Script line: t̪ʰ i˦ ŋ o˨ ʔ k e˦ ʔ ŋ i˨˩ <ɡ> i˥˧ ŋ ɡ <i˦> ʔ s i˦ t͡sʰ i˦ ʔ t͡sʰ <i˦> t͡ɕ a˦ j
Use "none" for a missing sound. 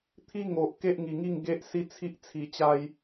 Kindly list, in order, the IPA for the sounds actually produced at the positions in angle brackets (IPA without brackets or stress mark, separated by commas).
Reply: ŋ, e˦, i˧